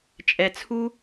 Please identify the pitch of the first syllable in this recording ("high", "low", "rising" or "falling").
low